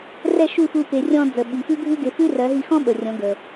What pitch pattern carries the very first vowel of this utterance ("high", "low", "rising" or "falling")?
falling